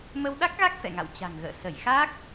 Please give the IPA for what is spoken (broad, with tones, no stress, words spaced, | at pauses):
mə˧wɗa˦˥k̚ɣa˦˥k̚ fɛ̰˧˨ŋa̰˧˨w t͡ɕa̤˨˩ŋɣə̰ː˧˨ sə˧˩jxa˦˥k̚